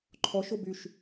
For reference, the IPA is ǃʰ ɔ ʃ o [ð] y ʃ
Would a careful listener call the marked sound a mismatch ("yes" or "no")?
yes